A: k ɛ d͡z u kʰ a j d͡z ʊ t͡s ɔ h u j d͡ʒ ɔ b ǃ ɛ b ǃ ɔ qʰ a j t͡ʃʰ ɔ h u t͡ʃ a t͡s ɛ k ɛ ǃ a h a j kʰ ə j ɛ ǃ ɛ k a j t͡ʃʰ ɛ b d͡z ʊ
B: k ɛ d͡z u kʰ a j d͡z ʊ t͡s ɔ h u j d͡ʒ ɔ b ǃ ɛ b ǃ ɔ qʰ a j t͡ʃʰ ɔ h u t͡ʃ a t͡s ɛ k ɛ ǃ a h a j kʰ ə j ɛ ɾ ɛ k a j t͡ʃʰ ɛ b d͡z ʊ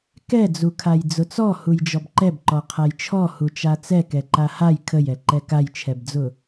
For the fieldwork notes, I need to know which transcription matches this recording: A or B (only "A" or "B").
A